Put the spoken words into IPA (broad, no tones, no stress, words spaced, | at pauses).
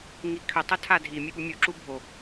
ŋikʰʏ tˤɵtʰadʱi mʲøɓumʲu ǁubʱo